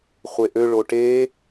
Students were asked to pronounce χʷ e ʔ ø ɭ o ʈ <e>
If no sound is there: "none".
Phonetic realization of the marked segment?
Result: e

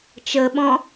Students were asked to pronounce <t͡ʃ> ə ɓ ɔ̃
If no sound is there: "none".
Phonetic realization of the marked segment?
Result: t͡ʃ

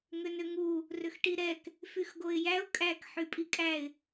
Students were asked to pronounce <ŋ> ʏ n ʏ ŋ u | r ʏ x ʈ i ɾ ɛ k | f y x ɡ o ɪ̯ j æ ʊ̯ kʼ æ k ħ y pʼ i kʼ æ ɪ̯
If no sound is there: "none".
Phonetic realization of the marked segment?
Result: ŋ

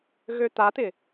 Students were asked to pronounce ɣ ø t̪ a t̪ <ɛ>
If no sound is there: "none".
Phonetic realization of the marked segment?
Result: ɪ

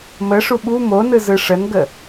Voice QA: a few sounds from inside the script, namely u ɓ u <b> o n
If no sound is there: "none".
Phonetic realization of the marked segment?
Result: m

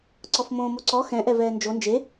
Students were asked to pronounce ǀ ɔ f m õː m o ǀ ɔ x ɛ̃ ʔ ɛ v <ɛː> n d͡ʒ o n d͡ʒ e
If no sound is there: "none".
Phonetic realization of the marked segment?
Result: ɛː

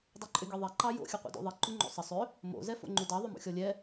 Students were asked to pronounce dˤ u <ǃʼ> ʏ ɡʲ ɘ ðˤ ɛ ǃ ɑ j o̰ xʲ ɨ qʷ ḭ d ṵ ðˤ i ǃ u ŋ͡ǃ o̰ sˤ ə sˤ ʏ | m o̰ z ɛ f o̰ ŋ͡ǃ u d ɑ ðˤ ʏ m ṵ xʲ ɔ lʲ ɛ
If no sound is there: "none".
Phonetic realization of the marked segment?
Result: ǃʼ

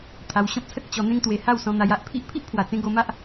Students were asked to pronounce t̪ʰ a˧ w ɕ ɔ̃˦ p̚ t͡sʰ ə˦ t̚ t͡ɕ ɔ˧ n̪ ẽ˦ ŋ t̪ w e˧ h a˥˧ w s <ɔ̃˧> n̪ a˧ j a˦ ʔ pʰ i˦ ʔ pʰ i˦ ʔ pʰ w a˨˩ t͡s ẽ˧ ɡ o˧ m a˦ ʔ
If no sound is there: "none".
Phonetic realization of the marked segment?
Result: ɔ̃˧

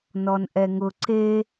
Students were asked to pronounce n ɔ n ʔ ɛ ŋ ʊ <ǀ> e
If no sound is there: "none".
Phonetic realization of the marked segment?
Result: ǀ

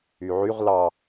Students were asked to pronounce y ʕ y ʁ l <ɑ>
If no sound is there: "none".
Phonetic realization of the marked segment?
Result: ɑ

